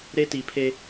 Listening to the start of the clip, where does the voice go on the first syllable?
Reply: high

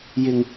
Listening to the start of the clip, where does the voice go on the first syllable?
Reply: low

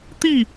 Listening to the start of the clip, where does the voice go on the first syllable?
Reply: falling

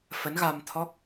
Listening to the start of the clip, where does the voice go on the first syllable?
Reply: rising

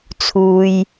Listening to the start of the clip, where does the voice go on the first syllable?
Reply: low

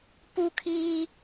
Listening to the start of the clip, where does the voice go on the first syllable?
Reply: high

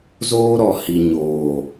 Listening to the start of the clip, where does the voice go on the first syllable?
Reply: high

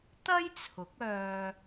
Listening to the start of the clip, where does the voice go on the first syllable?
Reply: high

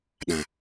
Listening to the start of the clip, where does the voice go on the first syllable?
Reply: low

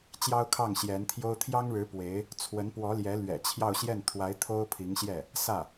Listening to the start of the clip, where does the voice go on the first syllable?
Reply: high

